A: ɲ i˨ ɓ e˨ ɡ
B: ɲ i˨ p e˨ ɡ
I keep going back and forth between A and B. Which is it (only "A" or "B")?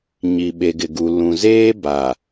A